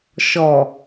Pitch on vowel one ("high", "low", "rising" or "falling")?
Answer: low